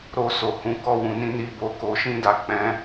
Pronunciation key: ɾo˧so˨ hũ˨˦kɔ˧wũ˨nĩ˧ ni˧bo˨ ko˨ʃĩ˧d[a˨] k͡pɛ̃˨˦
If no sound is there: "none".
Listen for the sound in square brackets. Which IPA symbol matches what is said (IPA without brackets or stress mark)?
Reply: a˨